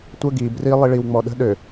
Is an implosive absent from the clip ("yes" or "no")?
no